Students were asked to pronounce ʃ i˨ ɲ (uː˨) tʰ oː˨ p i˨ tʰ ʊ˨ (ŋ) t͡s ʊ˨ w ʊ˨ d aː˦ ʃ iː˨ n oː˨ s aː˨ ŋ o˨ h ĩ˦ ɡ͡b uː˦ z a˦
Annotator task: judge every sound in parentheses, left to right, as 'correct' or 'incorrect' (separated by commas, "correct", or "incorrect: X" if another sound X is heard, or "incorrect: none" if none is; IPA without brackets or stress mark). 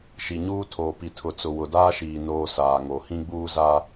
incorrect: uː˦, incorrect: none